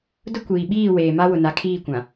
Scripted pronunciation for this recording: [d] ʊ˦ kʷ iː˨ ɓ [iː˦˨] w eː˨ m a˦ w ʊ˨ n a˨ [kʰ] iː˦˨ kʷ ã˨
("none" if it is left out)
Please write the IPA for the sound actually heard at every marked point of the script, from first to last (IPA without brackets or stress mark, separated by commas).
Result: d, iː˦˨, kʰ